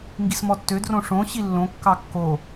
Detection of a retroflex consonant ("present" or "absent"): present